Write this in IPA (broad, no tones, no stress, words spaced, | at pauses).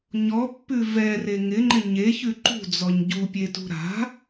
ɲɔpːʉ vɛre ŋɪŋ͡ǃɪ ɲeçʉ ǃṳd͡zɔɲ ɟupʲetṳ ɾa̤